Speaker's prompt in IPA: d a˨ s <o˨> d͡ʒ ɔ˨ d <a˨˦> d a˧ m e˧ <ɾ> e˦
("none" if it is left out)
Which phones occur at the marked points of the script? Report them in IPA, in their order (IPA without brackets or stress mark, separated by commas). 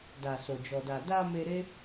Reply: o˨, a˨, ɾ